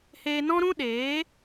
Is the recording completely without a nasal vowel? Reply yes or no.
no